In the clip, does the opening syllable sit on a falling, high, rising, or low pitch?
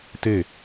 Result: falling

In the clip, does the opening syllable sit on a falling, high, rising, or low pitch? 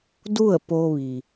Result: falling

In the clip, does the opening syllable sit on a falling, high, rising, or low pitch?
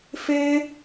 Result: high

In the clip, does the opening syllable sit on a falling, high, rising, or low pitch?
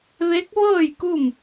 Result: rising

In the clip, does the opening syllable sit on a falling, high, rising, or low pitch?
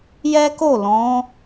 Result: high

